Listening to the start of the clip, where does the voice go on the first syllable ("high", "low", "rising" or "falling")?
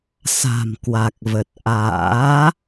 low